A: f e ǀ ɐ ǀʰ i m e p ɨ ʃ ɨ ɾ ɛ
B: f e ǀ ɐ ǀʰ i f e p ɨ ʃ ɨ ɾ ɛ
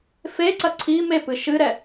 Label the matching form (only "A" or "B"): A